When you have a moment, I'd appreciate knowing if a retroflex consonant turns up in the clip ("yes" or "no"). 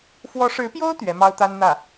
yes